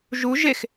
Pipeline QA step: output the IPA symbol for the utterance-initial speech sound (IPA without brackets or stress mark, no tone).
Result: ʒ